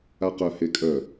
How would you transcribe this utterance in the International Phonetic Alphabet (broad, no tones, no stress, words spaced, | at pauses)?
aqœ hekʼœ